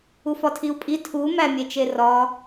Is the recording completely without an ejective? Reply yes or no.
no